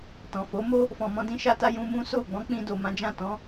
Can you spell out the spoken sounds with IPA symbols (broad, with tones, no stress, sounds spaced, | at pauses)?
t ɔ̃˨ f o˨˦ m o˦ | f ɔ̃˨ m ɔ̃˧ d ĩ˧ ʃ a˧ t a˧ j ũ˧ m ũ˦ s o˦˨ ɡ͡b ɔ̃˨˦ k͡p ĩ˧ d o˨ m ã˨˦ d͡ʒ ã˦˨ t ɔ̃˨˦